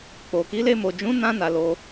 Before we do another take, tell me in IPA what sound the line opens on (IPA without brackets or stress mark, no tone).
k͡p